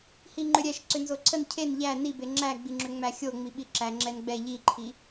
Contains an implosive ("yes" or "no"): yes